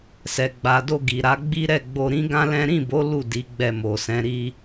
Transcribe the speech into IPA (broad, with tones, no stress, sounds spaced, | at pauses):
s ɛ˨ ɡ͡b a˨ d o˧ ɡ i˨ ɾ a˨˦ ɡ͡b i˦ ɾ ɛ˦˨ ɡ͡b o˧ ɾ ĩ˦ ɡ ã˦ l ɛ̃˦ ɾ ĩ˦˨ b o˨˦ l u˦˨ d i˨˦ ɡ͡b ɛ˧ m o˨ s ɛ̃˨˦ ɾ i˦